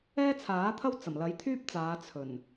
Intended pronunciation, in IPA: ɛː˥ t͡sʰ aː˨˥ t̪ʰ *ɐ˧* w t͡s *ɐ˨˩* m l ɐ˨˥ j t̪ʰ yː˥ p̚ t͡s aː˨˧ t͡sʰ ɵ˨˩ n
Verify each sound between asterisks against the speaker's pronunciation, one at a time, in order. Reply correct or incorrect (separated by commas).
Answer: incorrect, correct